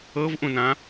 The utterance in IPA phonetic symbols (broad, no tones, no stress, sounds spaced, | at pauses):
ɤ v ʔ ũ n ã